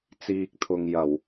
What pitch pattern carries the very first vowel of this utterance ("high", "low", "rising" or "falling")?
low